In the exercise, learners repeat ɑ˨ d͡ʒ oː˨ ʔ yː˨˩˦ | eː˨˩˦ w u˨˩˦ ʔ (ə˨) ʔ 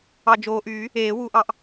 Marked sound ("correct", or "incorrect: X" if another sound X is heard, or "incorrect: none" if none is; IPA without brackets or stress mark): incorrect: ɑ˨